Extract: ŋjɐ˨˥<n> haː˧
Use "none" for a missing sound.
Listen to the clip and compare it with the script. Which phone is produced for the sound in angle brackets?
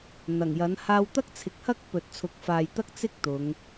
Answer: n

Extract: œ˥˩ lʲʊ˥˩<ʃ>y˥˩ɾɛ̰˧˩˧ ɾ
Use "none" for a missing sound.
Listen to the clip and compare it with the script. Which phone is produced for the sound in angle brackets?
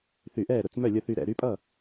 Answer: θ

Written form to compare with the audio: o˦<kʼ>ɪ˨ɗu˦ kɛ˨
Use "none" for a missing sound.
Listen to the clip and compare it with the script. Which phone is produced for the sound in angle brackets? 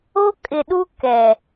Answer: kʼ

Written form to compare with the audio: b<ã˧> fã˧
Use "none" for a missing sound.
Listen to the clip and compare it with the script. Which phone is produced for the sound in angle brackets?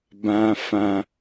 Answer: ã˧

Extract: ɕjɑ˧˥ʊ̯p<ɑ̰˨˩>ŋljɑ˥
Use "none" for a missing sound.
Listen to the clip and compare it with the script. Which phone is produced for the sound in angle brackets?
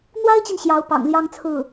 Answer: ɑ̰˨˩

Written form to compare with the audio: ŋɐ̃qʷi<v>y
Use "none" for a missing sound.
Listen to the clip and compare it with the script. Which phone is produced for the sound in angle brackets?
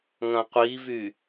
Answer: v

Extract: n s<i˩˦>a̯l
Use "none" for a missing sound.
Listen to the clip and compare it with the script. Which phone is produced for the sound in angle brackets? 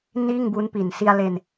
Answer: i˧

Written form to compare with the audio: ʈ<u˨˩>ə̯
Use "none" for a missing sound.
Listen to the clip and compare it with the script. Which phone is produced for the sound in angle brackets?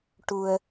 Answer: u˧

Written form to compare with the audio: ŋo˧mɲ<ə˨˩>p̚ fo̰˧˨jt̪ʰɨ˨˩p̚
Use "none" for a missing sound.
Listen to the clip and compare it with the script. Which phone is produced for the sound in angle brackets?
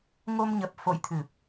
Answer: ə˨˩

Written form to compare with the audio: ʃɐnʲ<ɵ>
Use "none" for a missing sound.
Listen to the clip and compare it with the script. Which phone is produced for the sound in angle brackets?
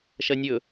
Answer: ɵ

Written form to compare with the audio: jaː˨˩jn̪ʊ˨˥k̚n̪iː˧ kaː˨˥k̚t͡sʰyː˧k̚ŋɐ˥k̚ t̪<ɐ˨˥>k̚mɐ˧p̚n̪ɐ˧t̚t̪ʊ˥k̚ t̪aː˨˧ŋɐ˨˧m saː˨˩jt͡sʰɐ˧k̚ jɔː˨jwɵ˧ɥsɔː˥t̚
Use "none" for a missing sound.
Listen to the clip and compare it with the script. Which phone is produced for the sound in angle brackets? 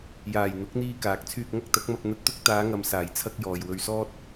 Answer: ɐ˨˥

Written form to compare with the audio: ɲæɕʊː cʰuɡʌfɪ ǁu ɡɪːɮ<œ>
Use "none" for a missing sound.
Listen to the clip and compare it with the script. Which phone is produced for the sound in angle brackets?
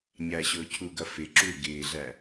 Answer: æ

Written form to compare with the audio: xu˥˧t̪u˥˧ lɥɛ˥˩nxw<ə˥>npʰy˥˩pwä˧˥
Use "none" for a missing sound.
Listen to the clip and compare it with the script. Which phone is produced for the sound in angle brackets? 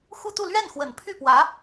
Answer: ə˨˩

